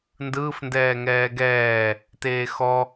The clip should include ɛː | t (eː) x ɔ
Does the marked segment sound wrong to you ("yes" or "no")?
no